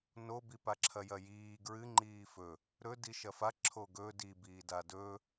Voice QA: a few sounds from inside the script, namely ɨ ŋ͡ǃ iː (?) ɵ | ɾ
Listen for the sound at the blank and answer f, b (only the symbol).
f